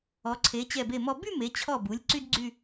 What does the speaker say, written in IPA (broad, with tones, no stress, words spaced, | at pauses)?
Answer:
ɔ˩˧ǀʰe˩˧ t͡ɕɛ˧˩be˧˩mɔ˧ by˥˧me˩˧ t͡ɕʰɔ˧˩bu˩˧lʲ ǀy˥dɡ͡ǀy˥˧